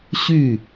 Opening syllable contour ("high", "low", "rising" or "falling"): falling